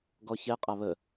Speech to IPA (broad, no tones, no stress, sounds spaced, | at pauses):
ɡ ɔ ç ɛ qʼ a β ə